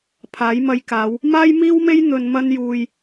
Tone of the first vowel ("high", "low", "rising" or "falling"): rising